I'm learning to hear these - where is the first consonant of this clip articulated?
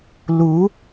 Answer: tongue tip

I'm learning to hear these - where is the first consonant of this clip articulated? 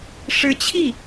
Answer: retroflex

